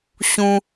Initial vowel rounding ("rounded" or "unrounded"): rounded